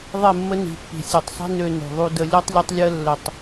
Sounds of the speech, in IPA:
ðˤ e˦˨ mː ə˦ n i̤˨ pː i̤˨ sʲ o˨ tˤ sˤ i̤˦ n ø˦ n ṳ˨ ðˤ u˦ d ə˦ lʲ ɜ˦ tˤ lʲ ɐ˦ tˤ lʲ ɜ˦ lː ə˨ tˤ

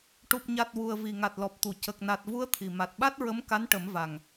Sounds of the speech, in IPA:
ʈ u˨˩ p̚ ɲ a˨˩ t̚ w u˨˩ ə̯ v i˨˩ ŋ a˨˩ t̚ l ɔ˨˩ p̚ t̪ u˨˩˨ c ə˨˩ k̚ n a˨˩ t̚ v u˧˥ ə̯ t̪ʰ i˨˩ m a˨˩ t̚ ɓ a˦˥ t̚ ɹ ə˧˥ m k a˧˥ n ʈ ə˨˩˦ m v a˨˩ ŋ

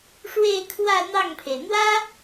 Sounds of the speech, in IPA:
ʂ w e˥˧ ɪ̯ kʰ w ä˥˧ n̪ ɑ˥˩ ŋ pʰ e˩ ɪ̯ n̪ w ä˥

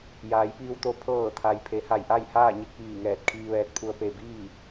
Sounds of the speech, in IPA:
j aː˩˧ j p iː˧ w t̪ o˧ pʰ ɤː˧˩ t̪ʰ a˩ j pʰ e˩˧ h a˧˩ j ʔ a˥˨ j h aː˥˨ ɲ i˧ k̚ ʋ iː˧˩ ŋ ɛː˧˩ t̚ kʰ iː˧ ʋ ɛː˧ t̚ pʰ u˧ ə̯ p e˧˩ b iː˥˨

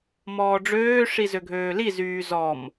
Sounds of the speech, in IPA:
m ɔː ɖ͡ʐ øː ʂ i z ø ɡʱ øː l i z yː z ɔ m

